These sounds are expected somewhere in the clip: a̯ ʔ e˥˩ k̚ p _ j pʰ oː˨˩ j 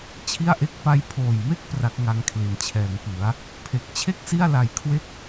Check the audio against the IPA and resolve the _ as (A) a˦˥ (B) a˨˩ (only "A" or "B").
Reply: A